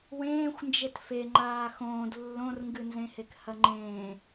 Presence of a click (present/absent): present